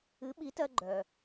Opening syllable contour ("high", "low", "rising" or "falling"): rising